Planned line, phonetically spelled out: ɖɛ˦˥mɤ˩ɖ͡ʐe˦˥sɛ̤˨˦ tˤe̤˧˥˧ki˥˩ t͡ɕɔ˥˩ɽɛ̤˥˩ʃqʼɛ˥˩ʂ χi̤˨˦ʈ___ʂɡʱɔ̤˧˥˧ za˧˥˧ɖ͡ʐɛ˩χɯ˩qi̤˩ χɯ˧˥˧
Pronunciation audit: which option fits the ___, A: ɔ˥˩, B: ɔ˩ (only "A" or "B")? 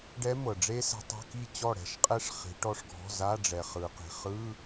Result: A